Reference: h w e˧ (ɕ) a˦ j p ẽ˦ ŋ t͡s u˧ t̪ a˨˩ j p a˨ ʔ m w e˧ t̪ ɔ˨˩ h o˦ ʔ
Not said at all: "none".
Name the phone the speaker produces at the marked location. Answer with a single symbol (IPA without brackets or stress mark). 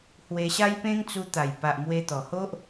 ɕ